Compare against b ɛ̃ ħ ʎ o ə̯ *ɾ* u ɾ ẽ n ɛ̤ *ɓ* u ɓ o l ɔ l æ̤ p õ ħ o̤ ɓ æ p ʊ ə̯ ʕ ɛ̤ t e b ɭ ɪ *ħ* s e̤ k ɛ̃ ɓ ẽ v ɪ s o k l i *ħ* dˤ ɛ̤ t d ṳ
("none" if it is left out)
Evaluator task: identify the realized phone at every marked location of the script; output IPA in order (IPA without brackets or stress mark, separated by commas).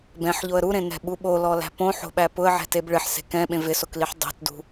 ɾ, ɓ, ħ, ħ